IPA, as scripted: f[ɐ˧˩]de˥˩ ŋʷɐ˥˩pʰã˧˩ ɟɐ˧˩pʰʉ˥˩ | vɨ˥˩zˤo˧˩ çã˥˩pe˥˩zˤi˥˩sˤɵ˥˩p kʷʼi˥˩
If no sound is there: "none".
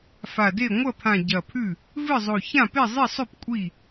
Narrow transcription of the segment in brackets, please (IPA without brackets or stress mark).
a˧˩